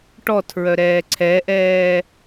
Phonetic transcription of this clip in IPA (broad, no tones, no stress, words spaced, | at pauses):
ʈɔtʰɹœ ɾɛːǀʰɛʔɛː